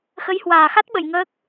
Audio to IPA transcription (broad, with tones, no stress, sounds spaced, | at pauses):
x ə˨˦ j h w aː˨˩ x a˦˥ t̚ ɓ ə̰˧˨ j ŋ əː˦˥ k̚